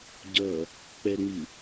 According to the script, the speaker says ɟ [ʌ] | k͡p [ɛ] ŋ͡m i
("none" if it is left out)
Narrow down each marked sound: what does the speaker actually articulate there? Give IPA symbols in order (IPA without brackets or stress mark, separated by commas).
ʌ, ɛ